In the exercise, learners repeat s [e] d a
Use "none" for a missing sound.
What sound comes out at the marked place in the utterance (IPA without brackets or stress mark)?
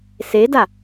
e